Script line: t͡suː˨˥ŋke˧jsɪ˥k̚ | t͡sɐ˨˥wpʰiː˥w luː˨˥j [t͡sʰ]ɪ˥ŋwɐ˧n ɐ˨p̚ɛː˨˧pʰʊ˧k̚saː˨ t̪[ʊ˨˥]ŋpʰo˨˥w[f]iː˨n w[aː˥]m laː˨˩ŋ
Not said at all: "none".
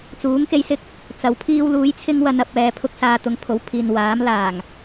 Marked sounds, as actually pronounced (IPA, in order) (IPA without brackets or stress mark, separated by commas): t͡sʰ, ʊ˨˥, pʰ, aː˨˥